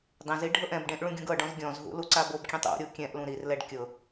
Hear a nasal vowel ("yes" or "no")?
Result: yes